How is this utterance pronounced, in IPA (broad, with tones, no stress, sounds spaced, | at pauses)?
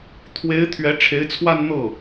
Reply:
t̪ʰ w e˧˥ ɪ̯ t̪ʰ ɥ ɛ˧˥ ʈ͡ʂʰ e˧˥ ɪ̯ t͡sʰ w a˥˧ n n̪ ɤ˥˩